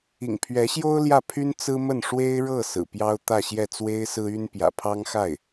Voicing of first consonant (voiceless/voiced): voiced